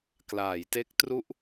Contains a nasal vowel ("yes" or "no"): no